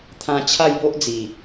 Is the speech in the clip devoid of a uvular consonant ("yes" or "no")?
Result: yes